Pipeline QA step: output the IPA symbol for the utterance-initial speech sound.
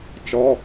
t͡ʃ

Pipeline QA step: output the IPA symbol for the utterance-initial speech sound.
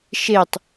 ʃ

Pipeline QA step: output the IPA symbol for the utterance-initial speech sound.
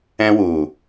ɛ̃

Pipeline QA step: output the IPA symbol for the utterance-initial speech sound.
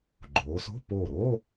ɡ͡ǃ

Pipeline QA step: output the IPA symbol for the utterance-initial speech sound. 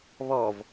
β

